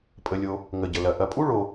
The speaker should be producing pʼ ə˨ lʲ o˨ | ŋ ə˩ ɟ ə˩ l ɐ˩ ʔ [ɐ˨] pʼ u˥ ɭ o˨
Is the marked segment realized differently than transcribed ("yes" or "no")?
no